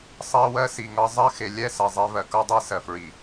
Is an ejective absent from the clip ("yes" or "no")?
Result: yes